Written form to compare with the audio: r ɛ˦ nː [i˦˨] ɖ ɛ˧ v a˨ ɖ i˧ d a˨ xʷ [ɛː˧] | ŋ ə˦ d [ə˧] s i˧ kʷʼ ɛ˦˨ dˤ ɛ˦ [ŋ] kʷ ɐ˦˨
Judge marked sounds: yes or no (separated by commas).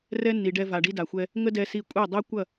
no, no, no, no